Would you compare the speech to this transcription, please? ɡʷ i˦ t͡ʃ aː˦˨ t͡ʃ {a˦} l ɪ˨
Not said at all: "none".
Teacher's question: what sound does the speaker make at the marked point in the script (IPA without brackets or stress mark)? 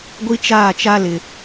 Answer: a˦